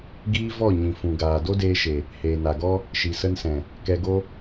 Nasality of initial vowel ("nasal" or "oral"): oral